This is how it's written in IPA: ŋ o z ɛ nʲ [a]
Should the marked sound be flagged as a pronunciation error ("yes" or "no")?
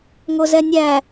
yes